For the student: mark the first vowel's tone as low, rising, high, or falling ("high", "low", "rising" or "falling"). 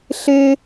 high